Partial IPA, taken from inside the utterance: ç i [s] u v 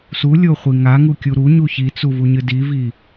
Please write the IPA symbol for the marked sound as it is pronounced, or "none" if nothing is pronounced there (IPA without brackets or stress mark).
t͡s